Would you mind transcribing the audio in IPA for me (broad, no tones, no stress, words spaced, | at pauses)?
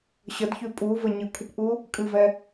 ɕədçʉ pʼuvə ɲɨkʷʰɨpʔu | kʼɨvɛ